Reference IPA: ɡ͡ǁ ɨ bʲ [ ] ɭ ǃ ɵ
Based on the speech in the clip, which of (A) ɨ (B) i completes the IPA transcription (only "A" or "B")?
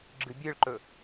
A